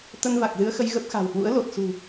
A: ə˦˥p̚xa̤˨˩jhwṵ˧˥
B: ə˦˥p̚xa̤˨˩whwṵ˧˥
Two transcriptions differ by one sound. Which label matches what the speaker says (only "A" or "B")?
B